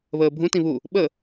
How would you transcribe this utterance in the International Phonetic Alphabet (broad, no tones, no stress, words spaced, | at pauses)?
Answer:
βəːbʱũ tĩβu | ɓə